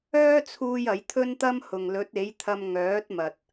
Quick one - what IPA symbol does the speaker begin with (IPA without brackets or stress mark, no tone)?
œː